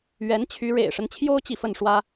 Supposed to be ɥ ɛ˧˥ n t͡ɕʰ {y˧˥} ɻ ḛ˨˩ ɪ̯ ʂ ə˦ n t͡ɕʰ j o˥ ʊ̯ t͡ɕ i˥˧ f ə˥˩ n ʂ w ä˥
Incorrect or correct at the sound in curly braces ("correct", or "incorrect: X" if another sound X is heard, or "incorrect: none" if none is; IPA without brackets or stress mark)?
correct